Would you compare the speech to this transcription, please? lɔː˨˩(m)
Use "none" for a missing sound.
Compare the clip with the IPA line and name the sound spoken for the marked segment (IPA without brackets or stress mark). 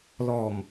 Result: m